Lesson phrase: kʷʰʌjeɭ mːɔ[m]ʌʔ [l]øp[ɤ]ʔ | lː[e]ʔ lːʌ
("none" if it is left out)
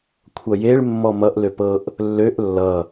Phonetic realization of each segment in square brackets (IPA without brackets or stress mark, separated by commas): m, l, ɤ, ø